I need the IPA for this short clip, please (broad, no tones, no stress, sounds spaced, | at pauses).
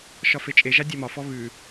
ʃ ɒ f e t͡ʃʼ e ʒ a dʲ ɛ m ɒ f ɔ β ʉ